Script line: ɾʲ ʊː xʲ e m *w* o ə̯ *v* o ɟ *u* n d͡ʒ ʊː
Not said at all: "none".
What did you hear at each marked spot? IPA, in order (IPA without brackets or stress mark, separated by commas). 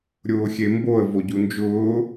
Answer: b, v, u